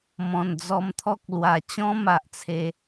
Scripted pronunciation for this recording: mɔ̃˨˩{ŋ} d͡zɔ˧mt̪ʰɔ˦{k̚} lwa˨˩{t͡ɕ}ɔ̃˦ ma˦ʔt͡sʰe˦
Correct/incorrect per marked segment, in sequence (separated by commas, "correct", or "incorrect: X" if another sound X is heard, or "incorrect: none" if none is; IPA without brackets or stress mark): incorrect: n, correct, correct